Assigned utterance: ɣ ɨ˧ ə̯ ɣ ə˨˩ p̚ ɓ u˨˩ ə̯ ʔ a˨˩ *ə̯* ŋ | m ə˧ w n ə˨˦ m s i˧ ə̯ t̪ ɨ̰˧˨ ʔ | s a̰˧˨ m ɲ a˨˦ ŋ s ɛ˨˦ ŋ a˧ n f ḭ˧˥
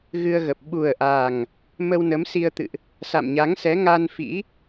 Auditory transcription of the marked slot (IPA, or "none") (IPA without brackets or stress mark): none